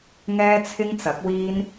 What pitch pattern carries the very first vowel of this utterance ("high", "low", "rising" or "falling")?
high